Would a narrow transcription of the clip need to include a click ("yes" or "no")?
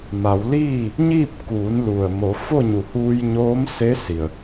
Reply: no